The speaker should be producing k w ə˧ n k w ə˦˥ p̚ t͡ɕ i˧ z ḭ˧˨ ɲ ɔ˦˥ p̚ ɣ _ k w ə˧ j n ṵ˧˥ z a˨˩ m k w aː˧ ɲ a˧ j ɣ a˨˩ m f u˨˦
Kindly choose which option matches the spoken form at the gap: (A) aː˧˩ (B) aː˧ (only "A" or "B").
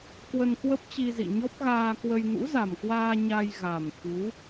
B